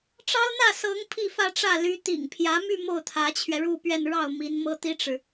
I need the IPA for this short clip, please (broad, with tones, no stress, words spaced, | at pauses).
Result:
ʈ͡ʂɑ˥ʊ̯n̪ä˥˩sɤ˧˥ŋ pʰi˥˧fä˥˧ʈ͡ʂä˥˩ ly˧˥ t̪ḭ˨˩ŋpʰjä˧˥my˥˧ mo˥˩ʊ̯t̪ʰä˧˥t͡ɕʰɥɛ˧ ɻu˥˧pɥɛ˥˧n ɻɑ˥˩ʊ̯mi˧˥nmɤ˥ t̪i˥ʈ͡ʂɻ̩˨